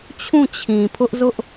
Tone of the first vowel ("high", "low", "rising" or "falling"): falling